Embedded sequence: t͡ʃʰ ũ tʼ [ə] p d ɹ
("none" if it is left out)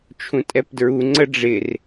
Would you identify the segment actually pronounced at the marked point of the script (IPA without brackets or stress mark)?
ɛ